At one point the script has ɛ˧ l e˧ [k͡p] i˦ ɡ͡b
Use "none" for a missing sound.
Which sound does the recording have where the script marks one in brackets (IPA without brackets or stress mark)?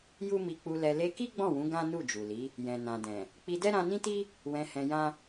k